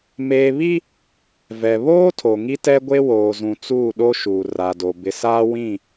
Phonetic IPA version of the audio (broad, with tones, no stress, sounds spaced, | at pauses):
m eː˨ β i˦ | v ɛ˨ β oː˦ tʰ o˨ ŋ i˦ t ɛ˦ ɡʷ e˦ w oː˨ z ũ˨ t͡s uː˦˨ ɗ o˦ ʃ uː˨ r a˨ d o˨ b ɪ˨ s aː˦ w ĩ˦˨